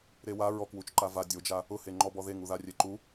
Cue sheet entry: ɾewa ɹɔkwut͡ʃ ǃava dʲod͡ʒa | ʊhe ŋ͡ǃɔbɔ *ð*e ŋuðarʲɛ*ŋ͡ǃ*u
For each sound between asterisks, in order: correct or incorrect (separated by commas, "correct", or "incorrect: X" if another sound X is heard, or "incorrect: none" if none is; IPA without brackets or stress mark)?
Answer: correct, incorrect: ǃ